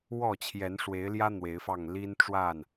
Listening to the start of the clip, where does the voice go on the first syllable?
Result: falling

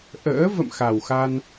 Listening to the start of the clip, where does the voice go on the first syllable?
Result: rising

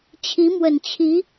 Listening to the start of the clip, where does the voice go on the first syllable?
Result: rising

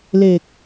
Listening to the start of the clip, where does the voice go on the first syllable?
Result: low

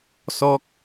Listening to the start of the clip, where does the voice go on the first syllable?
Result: low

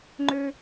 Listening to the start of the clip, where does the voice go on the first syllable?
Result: low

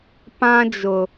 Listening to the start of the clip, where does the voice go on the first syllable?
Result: high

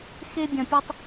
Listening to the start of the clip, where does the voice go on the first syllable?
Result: high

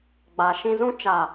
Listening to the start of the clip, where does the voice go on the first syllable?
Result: low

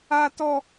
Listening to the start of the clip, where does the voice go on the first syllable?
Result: high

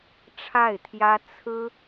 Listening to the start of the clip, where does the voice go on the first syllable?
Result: falling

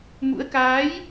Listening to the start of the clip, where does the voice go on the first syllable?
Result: rising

